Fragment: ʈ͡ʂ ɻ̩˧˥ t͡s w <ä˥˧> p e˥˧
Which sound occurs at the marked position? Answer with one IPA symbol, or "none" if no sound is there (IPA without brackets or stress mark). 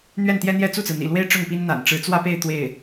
ä˥˧